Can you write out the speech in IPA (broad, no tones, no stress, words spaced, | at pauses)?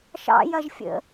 ʃɑ̰jɐʒfʲə̰